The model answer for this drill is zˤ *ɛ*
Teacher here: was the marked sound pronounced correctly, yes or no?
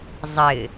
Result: no